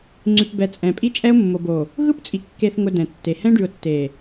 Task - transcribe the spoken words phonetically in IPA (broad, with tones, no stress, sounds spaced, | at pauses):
ŋ͡ǀ ʉ˨ p b ɛ˨ t͡sʼ ɛ̃˨ pʼ i˦ t͡ʃʼ ɛ˦ ʊ̯ mː o˨ b o˨ | ɣ ɯ˦ p t͡sʼ i˨ kː e˨ θ ŋ ʊ˨ d ɛ̃˨ tː e˨ h ɛ̃˦ ɖ ʉ˨ ʊ̯ tː e˨